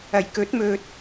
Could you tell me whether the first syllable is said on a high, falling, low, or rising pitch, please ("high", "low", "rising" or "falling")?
low